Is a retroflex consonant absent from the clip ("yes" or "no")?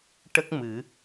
no